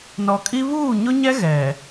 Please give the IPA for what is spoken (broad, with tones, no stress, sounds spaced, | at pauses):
n ɔ˨ kʼ i˦ β uː˦˨ ɲ ʊ˦ ɲ ɛ˦ ɣ ɛ˨